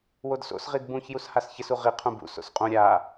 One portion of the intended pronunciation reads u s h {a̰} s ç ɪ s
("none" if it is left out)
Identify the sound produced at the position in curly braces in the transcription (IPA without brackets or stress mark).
a